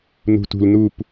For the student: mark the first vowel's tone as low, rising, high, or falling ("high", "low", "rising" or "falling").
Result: low